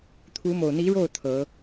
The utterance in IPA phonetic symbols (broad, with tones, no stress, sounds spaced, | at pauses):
t̪ʰ u˧˥ m o˨˩ ʊ̯ n̪ i˧˥ ɻ o˥˩ ʊ̯ t̪ʰ ɤ˧˥